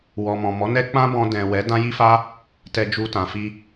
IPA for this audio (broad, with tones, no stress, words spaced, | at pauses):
wɔ˨mɔ̃˨ mɔ˨˦nɛ˦ k͡pã˦bɔ̃˧dɛ̃˨wɛ˨˦ dã˦ji˦fa˦ | tɛ˧ d͡ʒu˧tã˨fi˧